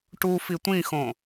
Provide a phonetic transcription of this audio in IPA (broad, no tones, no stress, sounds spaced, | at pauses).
ʈ u f i tʷ ĩ x õ